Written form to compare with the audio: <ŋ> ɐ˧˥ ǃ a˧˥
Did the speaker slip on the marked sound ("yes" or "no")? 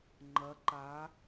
yes